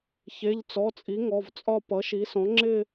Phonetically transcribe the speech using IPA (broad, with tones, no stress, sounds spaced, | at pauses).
ç e˩˧˩ ʎ t͡s ɔ˩˧˩ t͡sʼ i˩˥ ŋ ɔ˩˧˩ v t͡sʼ ɒ˥˧ p ʌ˩˥ ʃ i˩˥ s ɔ̃˩˥ ŋ͡ǁ ɪ˥˧